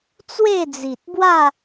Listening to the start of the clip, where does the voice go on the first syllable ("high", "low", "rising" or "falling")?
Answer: falling